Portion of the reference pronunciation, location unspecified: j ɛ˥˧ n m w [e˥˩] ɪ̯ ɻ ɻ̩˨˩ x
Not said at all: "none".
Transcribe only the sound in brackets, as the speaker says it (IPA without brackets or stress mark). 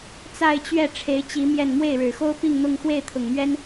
e˥˩